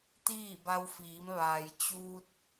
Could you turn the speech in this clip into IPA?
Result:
t̪ iː˥˨ b a˧ w f iː˩˧ m ʋ aː˩ j t͡ɕ uː˧ t̚

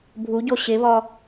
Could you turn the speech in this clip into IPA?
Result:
bʱ u ɟ o ɕ ɪ β ɔ

